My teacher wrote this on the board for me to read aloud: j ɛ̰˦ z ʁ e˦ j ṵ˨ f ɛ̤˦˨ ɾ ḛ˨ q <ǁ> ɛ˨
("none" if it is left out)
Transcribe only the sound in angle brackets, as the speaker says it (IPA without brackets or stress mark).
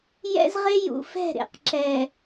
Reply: ǁ